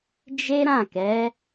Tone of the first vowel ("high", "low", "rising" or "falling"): high